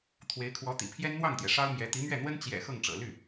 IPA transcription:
t̪ʰ w e˧˥ ɪ̯ kʰ w ɔ˧˥ t̪ ḭ˨˩ pʰ j ɛ˥ n n̪ w ɑ˥˩ ŋ t̪ j ɛ˩ ʂ ɑ˥ ʊ̯ m j ɛ˧˥ t̪ i˧˥ m ɥ ɛ˥˩ n̪ w ə˥ n t͡ɕ j ɛ̰˨˩ x ɤ˥˩ ŋ ʈ͡ʂ ɤ̰˨˩ l y˥˩

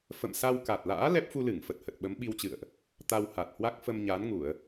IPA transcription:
f ə̰˧˨ m s a˧ w k a˨˩ t̚ l a̰ː˧˥ l ɛ˦˥ p̚ f u˧ l ɨ˧˩ ŋ f ə˨˩ t̚ h ə˨˩ t̚ ɓ ə˨˦ m ɓ i˧ w t͡ɕ ɨ̰˧˨ ə̯ ʔ | t̪ a˧ w h a˨˩ t̚ h w a˦˥ k̚ f ə˧ m ɲ aː˨˦ n ŋ u˧˩˨ ə̯

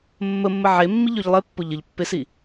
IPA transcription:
mː ə mː ə ʕ e mː i ʎ ø ʎ lˠ e pː ʊ ʎ ə ʎ pː e s i

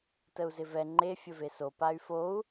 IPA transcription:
t ə u̯ z ɪ v ɛ ŋ͡ǃ e fʲ ə v e s o p a y̯ f o u̯

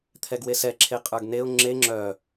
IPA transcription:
t̪ʰ ɛ ɡ w e s ɛ ǁʰ e qʼ ə˞ ɡ n e ʊ̯ ŋ͡ǁ e ŋ͡ǁ œ

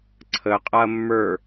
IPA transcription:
ǀʰ ə qʼ a ɐ̯ mː ə˞

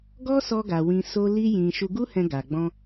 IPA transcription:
ɡ ɔ˦ s ɔ˧ ɡ a˨ w ĩ˧ s o˦ l i˦ j ĩ˧ ʃ u˧ ɡ u˦ h ɛ̃˧ ɡ a˨ ɡ͡b ɔ̃˧

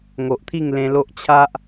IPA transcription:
ŋ o˨ ʔ t̪ʰ i˥˧ ŋ l ẽ˧ l o˦ ʔ t͡ɕʰ a˦ ʔ

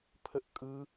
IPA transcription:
pʰ ə ʔ kʼ ɯ

